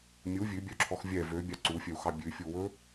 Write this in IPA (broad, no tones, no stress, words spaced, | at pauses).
mʲu vʲʉbʲœǁʰɔx vʲɛ vøbʲɑ ǀufʲœu̯xɑ bʲʉfʲuwɵ